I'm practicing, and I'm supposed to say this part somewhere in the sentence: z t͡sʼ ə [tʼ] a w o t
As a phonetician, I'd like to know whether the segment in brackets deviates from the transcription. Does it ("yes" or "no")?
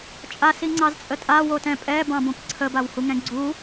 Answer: no